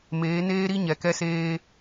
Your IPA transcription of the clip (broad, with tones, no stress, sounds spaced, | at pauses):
m eː˨˦ n eː˦ ɾ i˦ ɲ ɛ˨ k ɛ˦ s eː˦